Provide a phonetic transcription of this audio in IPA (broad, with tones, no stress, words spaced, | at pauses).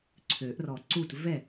ǀʰø˨˩˦ʔrɔ˨˩ǀu˥˩t vɛ˥˩